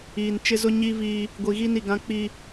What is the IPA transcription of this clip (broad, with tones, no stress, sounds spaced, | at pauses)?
iː˨ n t͡ʃ ɪ˦ z ʊ˦ ɲ i˦ v iː˦ | ɡʷ i˨ ɣ i˦ n i˨ ɡ ã˦ k͡p i˦